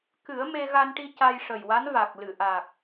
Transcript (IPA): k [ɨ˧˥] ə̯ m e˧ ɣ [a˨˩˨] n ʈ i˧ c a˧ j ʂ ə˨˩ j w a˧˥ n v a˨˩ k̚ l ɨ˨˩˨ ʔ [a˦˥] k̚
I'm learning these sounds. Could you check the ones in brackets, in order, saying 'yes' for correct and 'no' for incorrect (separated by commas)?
no, no, no